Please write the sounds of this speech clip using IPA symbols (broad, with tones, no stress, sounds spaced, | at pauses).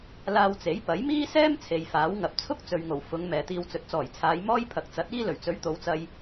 l aː˧ w t͡s e˨˥ j p ɐ˨˥ j m iː˥ s ɛː˥ m t͡sʰ e˨ j f aː˨˥ w ŋ ɐ˨ p̚ t͡sʰ ʊ˥ k̚ t͡s ɵ˨ ɥ ŋ o˨˩ w f ʊ˨˧ ŋ m ɛː˨ t̪ iː˧ w t͡s ɵ˨ t̚ t͡s ɔː˨˩ j t͡sʰ aː˨˧ j m ɔː˥ j pʰ ɐ˨˥ k̚ t͡s ɐ˨˥ t̚ iː˥ l ɵ˨˩ ɥ t͡s ɵ˨˥ ɥ t̪ o˨˧ w t͡s ɐ˧ j